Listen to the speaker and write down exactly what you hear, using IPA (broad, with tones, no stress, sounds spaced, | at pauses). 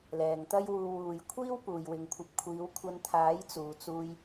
l ɛː˨ ŋ t̪ ɐ˥ j w uː˧ w uː˨ j kʷʰ iː˥ w p uː˨ j w ɪ˨ ŋ kʷʰ ɐ˧ p̚ kʷʰ iː˨˧ w kʷʰ ɐ˧ n t̪ʰ aː˨˥ j t͡s uː˨ t͡s uː˧ j